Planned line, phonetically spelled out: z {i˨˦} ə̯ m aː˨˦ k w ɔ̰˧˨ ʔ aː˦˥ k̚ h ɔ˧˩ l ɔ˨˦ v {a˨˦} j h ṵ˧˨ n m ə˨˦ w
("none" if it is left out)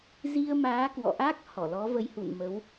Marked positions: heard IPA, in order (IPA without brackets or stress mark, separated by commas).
i˧, ə˨˦